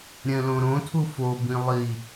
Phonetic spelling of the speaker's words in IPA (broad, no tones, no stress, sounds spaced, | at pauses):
ɾʲ ɛ̃ l õ ɾ õ tʰ u f o b ĩ lˠ i